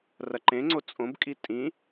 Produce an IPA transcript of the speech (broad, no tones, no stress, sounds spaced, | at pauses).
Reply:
r ɐ ǃ ẽ ŋ͡ǀ o t͡sʼ õ b kʼ i tʼ ĩ